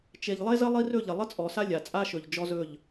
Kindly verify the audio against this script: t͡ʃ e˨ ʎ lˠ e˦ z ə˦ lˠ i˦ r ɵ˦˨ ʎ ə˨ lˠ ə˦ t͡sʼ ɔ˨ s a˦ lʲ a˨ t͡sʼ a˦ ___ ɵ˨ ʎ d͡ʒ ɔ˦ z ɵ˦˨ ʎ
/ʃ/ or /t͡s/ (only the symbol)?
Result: ʃ